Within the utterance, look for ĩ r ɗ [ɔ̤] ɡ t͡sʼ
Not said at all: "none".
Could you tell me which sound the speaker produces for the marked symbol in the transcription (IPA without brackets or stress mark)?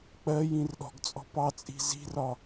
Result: ɔ̤